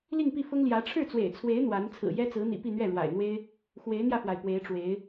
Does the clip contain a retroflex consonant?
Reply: yes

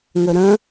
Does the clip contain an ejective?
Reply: no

